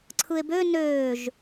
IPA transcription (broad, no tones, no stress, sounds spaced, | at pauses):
ǀʰ ɯ e̯ b ø n øː ʒ